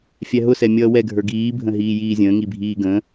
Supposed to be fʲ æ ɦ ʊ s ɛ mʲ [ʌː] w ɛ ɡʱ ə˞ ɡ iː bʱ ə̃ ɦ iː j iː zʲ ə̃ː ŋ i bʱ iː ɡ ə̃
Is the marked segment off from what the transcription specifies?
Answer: no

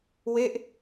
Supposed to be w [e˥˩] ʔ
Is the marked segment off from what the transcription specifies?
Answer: no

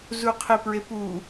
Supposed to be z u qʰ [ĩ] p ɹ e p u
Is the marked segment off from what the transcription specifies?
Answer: yes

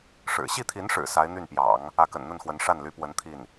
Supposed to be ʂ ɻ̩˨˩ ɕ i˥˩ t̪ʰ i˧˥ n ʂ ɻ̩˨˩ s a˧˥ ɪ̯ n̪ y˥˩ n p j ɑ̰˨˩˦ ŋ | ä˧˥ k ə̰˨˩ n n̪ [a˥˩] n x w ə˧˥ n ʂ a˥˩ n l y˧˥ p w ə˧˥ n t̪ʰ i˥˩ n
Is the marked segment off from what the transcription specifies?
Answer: yes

